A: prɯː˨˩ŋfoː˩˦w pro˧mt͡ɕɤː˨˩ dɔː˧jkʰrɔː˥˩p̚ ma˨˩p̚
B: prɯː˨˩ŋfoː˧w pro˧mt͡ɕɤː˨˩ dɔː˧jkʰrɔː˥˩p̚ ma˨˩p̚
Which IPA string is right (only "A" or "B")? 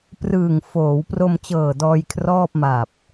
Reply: A